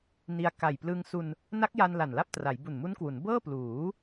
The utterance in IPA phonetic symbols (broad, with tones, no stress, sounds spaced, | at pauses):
n i˧ a̯ k a˨˩ j p l ɯ˧ ŋ s u˧ n | n a˦˥ k̚ j a˧ n l a˨˩ n l a˥˩ p̚ t r a˩˦ j b u˨˩ n m u˦˥ n k w u˩˦ n b ɤː˥˩ p l uː˩˦